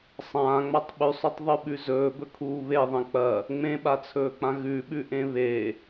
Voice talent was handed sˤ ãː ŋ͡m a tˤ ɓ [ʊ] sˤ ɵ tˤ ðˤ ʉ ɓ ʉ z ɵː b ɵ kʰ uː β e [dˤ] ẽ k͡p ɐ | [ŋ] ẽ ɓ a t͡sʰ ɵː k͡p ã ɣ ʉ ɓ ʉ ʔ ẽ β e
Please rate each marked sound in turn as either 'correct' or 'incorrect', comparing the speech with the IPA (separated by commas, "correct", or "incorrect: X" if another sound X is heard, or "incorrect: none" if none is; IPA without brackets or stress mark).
incorrect: ʉ, incorrect: ðˤ, incorrect: ŋ͡m